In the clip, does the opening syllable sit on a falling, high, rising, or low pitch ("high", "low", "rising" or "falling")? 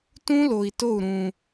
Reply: high